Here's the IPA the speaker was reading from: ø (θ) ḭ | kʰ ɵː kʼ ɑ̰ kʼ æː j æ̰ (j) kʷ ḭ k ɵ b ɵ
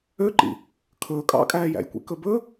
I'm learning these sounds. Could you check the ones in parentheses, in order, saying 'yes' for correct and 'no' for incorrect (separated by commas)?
no, yes